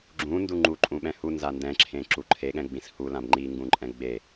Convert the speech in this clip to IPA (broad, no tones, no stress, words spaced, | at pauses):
ɡ͡ǁũndu ŋ͡ǃuǃʼũɓɛ̃ hunza ndɛ̃ǁʰẽǁu ǃʰeɠɛ̃ɡ͡bĩs hulãb ŋ͡ǃiŋɡũǃʼɛ̃ ɡ͡be